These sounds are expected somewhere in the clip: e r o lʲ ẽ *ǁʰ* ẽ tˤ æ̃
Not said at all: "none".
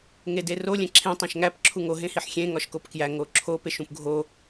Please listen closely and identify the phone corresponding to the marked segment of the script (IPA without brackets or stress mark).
ǁʰ